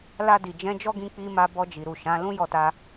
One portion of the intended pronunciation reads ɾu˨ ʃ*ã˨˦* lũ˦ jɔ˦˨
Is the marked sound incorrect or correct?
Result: correct